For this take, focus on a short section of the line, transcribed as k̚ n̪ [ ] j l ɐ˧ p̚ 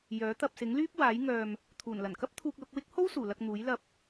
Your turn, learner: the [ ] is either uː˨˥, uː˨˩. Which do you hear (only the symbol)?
uː˨˥